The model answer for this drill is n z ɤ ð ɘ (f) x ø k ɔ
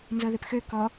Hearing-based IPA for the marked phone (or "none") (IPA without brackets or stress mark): p